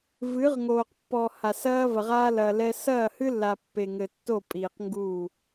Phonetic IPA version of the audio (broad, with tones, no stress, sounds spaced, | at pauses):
v ɨ˨˦ ʁ ŋ oː˨ q pː ɔ˨ h a˨ s ɐː˦ v ɐ˨ ʁ aː˦ l ɐː˨ l ɛ˦ s ɐː˦˨ h ɨ˦ lː a˨ pː e˨ ŋ ɘ˨ tː o˦˨ pʼ iː˨ q ŋ ɡ u˦˨